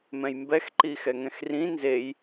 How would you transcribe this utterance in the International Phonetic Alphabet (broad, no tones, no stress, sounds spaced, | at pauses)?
m ɛ̃ j m b ɛ x ǃ i x ɛ ŋ ɛ̃ x r ĩ n z e j